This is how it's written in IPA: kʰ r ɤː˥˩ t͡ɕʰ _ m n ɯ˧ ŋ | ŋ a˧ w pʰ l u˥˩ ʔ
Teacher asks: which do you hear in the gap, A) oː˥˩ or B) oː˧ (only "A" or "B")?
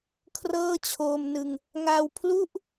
B